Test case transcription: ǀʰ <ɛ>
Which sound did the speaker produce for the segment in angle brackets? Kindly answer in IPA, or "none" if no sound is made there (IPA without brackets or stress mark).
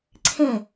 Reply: ɛ̃